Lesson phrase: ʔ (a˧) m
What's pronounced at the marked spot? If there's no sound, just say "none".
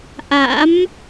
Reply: a̰˧˥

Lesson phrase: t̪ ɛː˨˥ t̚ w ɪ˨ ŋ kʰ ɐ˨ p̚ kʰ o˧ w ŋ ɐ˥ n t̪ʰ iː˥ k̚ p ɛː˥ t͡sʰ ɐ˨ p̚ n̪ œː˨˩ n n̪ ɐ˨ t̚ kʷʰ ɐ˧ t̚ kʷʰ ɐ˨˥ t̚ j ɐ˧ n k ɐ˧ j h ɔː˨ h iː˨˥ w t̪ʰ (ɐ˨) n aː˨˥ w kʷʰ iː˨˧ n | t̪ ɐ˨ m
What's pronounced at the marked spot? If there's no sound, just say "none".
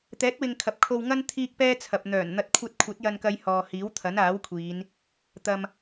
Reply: ɐ˨˥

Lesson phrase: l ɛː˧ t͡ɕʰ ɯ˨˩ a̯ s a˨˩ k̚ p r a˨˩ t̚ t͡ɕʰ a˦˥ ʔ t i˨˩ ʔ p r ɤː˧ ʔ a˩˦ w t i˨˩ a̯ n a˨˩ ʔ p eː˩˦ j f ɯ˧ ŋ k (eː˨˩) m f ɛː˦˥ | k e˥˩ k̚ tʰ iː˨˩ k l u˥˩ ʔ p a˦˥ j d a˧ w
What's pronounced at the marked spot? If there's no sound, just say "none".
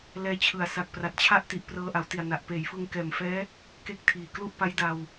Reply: ɛː˨˩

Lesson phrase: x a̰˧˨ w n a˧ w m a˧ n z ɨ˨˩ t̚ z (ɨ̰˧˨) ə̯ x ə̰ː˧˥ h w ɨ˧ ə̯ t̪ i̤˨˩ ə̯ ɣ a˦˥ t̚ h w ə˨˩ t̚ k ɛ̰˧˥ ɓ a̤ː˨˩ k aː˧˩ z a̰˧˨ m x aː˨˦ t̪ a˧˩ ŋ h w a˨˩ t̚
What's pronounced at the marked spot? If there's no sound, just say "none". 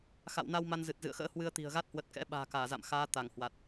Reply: ɨ̰˧˨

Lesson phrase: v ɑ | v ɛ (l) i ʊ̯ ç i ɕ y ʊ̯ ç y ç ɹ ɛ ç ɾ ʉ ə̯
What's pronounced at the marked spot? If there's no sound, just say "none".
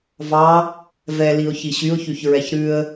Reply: l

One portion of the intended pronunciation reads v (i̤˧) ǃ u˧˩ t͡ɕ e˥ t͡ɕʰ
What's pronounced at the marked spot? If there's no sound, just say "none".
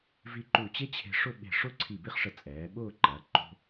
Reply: i˧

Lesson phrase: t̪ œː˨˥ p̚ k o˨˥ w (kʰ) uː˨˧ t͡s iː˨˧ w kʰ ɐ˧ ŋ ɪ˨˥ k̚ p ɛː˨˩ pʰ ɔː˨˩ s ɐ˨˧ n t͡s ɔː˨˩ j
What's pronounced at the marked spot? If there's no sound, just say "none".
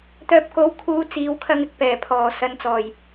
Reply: kʰ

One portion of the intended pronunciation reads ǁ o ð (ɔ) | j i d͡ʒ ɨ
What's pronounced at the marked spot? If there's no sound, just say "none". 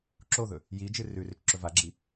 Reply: ɵ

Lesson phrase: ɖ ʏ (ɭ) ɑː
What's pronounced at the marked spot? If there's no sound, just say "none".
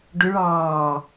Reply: ɭ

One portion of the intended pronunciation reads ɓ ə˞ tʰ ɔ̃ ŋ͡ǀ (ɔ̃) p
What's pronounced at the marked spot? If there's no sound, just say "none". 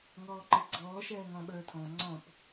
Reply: ɔ̃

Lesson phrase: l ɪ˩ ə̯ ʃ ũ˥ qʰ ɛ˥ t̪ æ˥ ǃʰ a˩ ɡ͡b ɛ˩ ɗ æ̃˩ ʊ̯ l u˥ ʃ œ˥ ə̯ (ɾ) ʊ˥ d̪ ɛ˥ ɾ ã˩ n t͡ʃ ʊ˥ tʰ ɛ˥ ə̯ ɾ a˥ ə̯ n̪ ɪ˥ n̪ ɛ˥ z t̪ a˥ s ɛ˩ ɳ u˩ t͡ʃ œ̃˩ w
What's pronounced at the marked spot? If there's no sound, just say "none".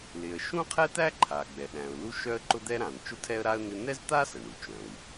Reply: ǃ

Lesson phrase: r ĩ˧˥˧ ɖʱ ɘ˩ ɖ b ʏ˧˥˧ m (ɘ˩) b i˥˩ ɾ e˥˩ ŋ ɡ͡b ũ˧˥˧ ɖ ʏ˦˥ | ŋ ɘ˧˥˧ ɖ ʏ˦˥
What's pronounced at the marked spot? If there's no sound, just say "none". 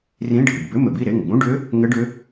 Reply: ɘ˩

